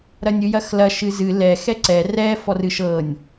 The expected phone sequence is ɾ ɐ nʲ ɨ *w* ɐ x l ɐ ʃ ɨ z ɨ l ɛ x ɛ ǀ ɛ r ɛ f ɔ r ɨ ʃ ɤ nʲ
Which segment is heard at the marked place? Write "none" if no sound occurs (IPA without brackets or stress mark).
j